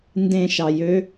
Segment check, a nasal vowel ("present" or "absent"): present